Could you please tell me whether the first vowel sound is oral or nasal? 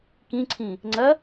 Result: nasal